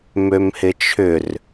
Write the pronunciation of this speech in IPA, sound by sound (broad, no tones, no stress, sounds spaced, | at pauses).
m ø m h ɪ t͡ʃʰ ʏ r